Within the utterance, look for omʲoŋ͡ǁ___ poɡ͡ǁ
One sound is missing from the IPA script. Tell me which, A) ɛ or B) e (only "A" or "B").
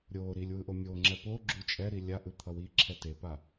A